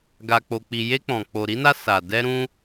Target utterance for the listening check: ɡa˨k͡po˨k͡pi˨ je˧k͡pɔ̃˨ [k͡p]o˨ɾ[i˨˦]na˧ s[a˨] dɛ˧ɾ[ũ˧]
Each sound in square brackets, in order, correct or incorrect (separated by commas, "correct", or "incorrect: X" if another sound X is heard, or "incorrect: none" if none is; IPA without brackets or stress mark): correct, correct, correct, correct